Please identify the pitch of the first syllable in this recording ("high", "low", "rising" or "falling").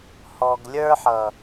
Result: low